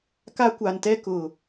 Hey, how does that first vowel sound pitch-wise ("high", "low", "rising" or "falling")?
high